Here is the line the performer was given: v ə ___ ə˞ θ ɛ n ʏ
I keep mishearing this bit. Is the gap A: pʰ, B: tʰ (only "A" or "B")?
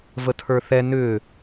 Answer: B